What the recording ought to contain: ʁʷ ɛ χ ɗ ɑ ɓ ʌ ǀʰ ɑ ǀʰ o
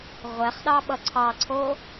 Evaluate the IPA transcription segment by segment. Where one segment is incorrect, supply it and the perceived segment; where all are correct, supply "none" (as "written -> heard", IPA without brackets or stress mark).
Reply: none